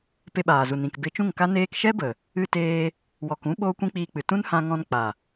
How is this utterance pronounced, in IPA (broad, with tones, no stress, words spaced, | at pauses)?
pe˧ɓaː˨zu˨ nĩ˨kbe˧t͡ʃũ˦˨ŋka˦ neː˧kʃɛ˦bə˨ | ɨ˧teː˧ | wɔ˨kũ˦ ɓoː˦kʷĩ˦k͡piː˧k͡pɨ˨ tũ˦nhã˧ŋɔ̃˧n k͡pa˨